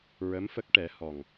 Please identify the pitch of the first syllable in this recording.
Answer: rising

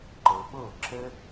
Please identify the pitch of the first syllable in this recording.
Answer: low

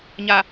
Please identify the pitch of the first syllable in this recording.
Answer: low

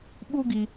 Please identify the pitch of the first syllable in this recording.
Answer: high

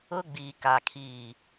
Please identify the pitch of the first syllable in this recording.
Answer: high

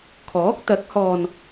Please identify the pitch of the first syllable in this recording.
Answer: rising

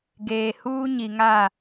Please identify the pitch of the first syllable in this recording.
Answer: low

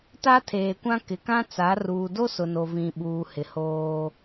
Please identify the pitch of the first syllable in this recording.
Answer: high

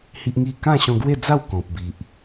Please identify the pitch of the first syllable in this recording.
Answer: high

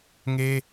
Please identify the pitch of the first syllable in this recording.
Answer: high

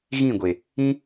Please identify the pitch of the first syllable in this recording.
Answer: falling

